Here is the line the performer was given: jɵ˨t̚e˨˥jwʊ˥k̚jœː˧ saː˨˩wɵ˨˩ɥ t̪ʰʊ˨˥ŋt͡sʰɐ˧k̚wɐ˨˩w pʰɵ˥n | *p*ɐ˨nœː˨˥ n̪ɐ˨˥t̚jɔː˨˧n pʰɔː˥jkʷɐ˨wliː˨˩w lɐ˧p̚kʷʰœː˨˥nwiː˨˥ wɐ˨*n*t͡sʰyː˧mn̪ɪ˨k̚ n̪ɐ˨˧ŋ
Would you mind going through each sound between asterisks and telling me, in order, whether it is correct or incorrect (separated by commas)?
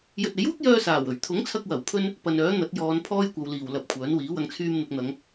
correct, incorrect